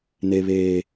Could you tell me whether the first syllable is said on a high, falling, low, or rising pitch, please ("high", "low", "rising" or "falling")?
high